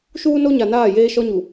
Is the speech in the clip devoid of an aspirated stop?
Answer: yes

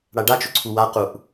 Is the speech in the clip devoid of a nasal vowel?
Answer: yes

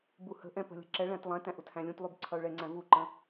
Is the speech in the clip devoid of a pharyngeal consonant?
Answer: yes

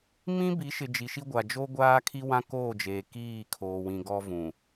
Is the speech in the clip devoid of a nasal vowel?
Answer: no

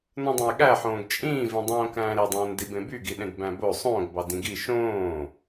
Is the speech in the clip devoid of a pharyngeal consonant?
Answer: no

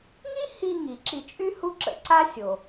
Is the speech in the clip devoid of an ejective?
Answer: no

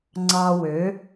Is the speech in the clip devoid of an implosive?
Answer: yes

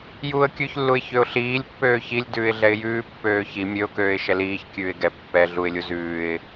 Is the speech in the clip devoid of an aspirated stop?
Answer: yes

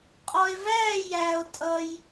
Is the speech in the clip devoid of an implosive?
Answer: yes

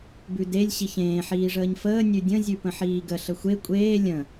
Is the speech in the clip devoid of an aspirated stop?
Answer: yes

